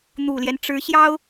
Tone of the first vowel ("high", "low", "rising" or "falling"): low